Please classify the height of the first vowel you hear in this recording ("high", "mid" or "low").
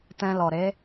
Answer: mid